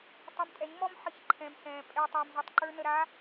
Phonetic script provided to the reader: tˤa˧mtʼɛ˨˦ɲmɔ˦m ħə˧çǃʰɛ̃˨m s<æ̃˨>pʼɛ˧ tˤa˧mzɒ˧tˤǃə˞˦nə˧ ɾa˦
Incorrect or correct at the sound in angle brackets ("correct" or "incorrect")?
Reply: incorrect